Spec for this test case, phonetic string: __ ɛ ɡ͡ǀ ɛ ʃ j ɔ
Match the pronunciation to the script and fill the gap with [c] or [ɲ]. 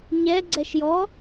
ɲ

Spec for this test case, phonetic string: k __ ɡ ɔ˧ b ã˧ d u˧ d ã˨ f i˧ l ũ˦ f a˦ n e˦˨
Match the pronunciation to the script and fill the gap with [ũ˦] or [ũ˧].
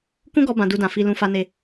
ũ˦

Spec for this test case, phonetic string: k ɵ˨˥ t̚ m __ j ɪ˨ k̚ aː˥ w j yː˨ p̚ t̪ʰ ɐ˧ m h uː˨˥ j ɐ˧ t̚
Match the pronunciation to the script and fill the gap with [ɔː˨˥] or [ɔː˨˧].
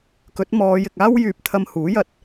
ɔː˨˧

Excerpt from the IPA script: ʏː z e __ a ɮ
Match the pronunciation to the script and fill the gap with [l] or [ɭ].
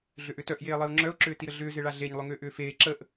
ɭ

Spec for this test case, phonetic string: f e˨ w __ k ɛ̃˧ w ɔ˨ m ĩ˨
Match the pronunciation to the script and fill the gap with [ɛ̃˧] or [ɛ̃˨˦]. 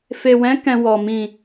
ɛ̃˨˦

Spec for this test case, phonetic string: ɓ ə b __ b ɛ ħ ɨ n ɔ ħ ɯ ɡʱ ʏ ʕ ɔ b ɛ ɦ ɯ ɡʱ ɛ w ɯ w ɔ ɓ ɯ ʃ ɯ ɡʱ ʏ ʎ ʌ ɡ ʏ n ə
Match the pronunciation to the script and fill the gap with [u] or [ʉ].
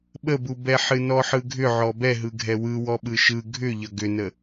u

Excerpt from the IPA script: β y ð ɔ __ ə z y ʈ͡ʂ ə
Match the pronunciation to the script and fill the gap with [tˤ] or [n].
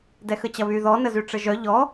n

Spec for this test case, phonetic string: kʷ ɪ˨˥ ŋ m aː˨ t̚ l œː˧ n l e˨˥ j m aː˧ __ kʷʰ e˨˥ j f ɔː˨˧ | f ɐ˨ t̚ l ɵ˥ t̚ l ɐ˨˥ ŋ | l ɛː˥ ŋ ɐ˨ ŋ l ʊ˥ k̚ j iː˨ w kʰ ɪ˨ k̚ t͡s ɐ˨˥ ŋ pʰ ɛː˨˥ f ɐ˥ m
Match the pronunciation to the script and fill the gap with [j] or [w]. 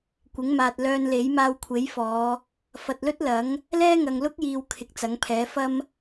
w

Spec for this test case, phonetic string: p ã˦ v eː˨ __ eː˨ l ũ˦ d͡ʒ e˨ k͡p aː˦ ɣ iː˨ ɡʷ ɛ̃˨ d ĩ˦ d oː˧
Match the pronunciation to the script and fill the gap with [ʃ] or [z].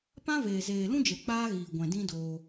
z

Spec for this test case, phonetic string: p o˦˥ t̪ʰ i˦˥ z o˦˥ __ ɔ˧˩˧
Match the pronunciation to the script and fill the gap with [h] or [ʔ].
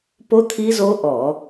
ʔ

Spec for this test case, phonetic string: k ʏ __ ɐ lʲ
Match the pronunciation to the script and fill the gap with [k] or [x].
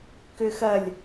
x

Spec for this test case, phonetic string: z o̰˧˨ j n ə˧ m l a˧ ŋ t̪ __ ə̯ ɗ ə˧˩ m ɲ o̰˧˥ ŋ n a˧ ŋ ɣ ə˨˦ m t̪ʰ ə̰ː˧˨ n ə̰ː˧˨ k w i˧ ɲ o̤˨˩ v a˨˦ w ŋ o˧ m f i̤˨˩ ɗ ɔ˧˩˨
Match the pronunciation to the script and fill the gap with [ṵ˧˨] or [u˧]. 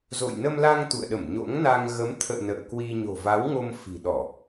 ṵ˧˨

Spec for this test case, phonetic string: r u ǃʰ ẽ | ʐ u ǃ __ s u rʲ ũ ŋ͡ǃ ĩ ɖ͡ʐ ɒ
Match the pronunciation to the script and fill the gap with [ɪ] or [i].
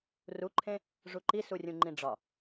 i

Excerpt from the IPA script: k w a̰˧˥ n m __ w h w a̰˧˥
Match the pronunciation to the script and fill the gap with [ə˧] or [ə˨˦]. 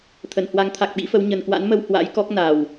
ə˧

